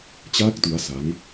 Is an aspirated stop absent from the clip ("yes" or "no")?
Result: yes